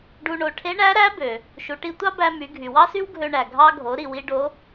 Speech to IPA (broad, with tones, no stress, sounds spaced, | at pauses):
ɖ u˧ ɳ o˩˧ ʈʰ e˧˥ ɳ æ˧˥ ɾ æ˧˥ b ø˩ | ʃ u˩˧ ʈ i˧ tʷ ɑ˥ b æ˧ m y˩˧ ɡʱ y˩ w ɑ˥ s y˥ w ɡʱ ø˧ ɳ æ˩ ɡʱ ɑ˧ ɡʱ o˩˧ ɾ i˩ w i˧ ɖ o˧˥